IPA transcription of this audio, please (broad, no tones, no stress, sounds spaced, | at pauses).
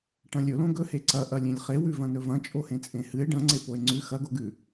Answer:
ʈ ɐ̃ lʲ ɵ l õ ɡ ɵ h e ǀ ɐ ʔ ɐ lʲ ẽ lʲ χ e w ʉ v ɐ̃ n ɵ v ɐ̃ t͡ʃʼ o h ẽ t͡sʼ ẽ h ɨ e̯ ɖ ɐ̃ ŋ͡ǀ e p o e̯ ŋ͡ǀ ʉ x ɐ ɡ o ɡ ʉ